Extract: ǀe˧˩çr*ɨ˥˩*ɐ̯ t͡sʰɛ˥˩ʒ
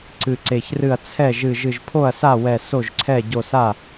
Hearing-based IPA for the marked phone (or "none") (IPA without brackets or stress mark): ɨ˥˩